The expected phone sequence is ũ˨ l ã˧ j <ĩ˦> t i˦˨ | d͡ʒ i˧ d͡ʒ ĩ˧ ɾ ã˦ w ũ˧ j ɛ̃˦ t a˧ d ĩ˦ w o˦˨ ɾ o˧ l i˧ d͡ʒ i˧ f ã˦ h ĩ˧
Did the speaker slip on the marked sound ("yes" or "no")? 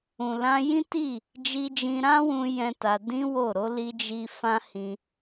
no